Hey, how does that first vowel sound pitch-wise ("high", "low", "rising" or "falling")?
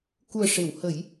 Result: low